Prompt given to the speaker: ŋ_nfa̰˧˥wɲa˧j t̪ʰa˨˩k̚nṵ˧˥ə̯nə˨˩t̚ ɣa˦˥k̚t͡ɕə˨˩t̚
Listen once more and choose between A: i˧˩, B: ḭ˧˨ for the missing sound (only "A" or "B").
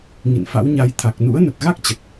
B